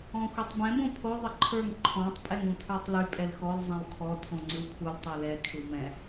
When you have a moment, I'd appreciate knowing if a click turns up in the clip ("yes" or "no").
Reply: yes